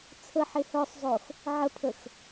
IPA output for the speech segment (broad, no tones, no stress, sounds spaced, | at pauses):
t͡sʰ ə ħ e h œ sˤ zˤ o x | ʕ ə pʰ ə x